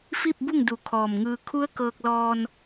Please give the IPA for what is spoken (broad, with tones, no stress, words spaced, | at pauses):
fi˥˨p̚bu˥˨ŋdu˧˩ kʰɔː˧˩mŋɯː˧ kʰu˧˥ə̯ kɤː˧k̚lɔː˧n